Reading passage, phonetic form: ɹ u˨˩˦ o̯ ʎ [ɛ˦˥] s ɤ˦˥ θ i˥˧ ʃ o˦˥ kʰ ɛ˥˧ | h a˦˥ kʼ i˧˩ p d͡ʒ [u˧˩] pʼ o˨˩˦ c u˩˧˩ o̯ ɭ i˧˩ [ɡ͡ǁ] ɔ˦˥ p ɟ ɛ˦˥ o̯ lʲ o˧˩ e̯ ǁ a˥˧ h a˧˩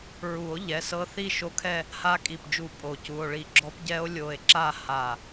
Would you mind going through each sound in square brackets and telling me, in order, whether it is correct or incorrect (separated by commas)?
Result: incorrect, correct, correct